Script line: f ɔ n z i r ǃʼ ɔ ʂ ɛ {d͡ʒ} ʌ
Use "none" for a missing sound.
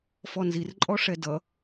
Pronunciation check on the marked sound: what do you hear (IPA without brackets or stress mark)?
d